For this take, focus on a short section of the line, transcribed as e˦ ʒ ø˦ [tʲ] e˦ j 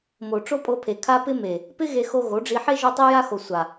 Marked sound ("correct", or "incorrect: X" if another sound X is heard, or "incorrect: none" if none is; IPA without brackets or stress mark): incorrect: tˤ